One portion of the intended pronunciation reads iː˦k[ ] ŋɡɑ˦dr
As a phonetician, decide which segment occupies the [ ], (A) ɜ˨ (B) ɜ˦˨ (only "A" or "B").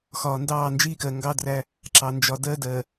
A